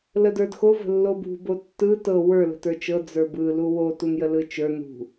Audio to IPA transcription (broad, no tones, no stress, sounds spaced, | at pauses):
l ə d ə˞ d x o v ə̤ lː o b ṳ b o tː ɯ t ɤ w ə˞ l ə̤ t ə˞ t͡ʃ ɤ d͡z ə˞ b ɯ l u w o t u n j ə l ɯ t͡ʃ ə˞ n ṳ